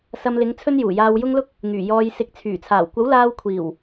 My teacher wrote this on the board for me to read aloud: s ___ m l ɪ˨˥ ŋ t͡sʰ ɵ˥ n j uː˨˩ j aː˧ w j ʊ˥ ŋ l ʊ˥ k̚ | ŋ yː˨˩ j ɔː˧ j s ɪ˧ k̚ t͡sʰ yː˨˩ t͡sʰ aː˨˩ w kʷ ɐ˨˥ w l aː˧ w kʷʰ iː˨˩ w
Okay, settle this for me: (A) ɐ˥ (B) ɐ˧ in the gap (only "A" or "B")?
B